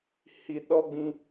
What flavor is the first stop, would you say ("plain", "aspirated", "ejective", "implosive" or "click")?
implosive